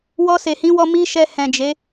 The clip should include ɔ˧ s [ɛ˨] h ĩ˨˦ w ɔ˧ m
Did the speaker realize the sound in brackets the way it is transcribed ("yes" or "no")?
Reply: no